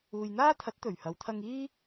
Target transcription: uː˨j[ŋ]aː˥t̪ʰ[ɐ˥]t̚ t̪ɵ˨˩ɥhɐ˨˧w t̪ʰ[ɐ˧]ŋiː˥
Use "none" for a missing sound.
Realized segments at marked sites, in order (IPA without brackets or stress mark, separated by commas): n̪, ɐ˨˥, ɐ˧